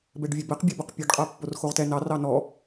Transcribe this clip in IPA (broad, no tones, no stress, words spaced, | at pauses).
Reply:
bɛɖvʲɛbɛq bʲabʌq pʲɛɖqʼa pːorxoʁtɛ nɑ rɑnɔ